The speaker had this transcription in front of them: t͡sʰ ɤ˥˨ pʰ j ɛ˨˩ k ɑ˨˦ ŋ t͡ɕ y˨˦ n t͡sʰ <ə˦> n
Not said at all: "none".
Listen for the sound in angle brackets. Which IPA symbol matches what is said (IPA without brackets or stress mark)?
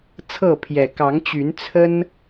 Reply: ə˦